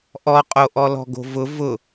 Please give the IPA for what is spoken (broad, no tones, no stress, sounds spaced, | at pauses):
ʔ ɔ qʼ o ʔ ɔ l ɔ̤ ɡ o̤ v ʊ v ʊ